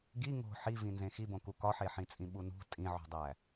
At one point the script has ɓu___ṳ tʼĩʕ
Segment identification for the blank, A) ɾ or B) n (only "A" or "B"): B